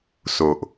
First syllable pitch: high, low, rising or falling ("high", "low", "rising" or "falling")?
low